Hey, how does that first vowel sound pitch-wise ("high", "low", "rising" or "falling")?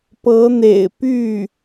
rising